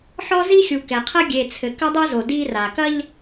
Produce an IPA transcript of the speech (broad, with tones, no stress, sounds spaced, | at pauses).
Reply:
ħ ɔ˦ z i˦ xʲ u˨ k ɛ˨ qʰ ɐ˦ ɡʲ e˨ t͡sʰ ɘ˨ k ɐ˦ dˤ ɐ˦ z o˨ d i˦ r a˨ k ɐ˦ ʎ